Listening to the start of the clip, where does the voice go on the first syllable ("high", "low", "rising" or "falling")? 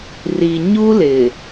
low